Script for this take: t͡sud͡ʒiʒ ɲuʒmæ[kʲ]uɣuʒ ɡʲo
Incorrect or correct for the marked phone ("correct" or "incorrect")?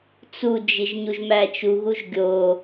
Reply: incorrect